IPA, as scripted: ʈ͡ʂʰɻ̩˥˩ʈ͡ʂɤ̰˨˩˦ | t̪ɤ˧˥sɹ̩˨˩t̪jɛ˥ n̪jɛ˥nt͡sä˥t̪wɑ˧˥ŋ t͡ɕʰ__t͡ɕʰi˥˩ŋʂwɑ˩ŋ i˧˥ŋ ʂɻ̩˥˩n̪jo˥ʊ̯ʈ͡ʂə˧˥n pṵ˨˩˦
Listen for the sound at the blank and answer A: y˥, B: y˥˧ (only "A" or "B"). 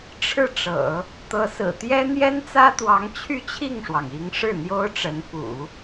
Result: B